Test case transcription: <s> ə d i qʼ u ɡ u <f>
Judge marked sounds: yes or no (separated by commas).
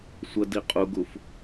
no, yes